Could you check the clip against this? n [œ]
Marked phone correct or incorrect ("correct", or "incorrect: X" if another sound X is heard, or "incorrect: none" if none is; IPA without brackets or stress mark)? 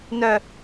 correct